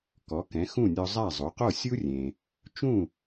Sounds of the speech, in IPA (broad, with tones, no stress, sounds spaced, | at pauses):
k ɔ˩˥ k ɛ̃˩˥ x ũ˥˩ nʲ ɔ˧ zˤ a˥˩ zˤ o˩˥ q o˥˩ sʲ u˥ rʲ ẽ˩ | t͡ʃ ũ˥˩